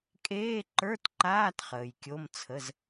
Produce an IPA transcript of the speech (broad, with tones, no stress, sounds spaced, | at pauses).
kʼ eː˧˥˧ ǃ ə˞˧˥˧ t ǃ aː˧˥˧ t χ əː˨ j kʲ o˧˥˧ m t͡sʰ ə˧˥˧ z